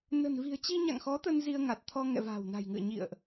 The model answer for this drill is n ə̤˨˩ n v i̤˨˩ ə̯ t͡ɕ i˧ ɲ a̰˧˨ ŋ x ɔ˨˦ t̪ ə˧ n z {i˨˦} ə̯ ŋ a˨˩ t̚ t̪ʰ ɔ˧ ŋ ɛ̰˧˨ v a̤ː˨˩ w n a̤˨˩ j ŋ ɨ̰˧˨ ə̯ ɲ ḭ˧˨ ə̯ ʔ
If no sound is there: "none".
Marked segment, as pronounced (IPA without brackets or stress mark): i˧